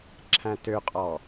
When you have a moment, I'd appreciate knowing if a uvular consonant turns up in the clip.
yes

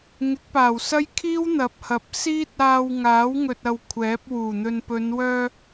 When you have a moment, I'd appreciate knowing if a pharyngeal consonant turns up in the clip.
no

